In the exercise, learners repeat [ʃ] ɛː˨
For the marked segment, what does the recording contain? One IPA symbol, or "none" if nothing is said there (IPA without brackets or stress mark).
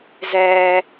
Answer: z